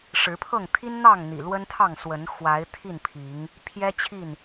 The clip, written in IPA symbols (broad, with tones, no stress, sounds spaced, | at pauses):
ʂ ɻ̩˨˦ pʰ ɤ˥˨ ŋ t̪ʰ i˦ n n̪ ɑ˥˨ ŋ n̪ ḭ˨˩ l w ə˦ n t̪ʰ ɑ˥˨ ŋ s w ə˨˦ n x w a˨˦ ɪ̯ t̪ʰ i˥˨ n pʰ i˨˦ ŋ | pʰ j ɛ˦ t͡ɕʰ i˥˨ n